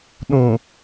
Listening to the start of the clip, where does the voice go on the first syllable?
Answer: low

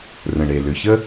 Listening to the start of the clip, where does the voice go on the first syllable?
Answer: low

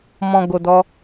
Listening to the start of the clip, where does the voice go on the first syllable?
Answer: low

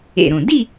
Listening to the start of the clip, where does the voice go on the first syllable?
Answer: low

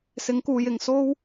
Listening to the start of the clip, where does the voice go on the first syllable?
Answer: rising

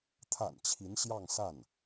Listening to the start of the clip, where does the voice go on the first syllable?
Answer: low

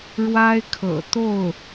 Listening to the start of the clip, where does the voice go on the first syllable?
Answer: high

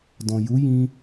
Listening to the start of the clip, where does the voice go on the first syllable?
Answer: low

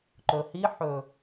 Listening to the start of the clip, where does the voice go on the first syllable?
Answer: low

